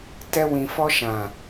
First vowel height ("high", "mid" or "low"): mid